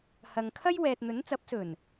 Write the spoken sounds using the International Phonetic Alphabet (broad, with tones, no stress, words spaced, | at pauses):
hɐ˨ŋ kʰɐ˥jwɛː˨t̚ n̪ɵ˨˥nt͡sɐ˨˥p̚sɵ˨˩n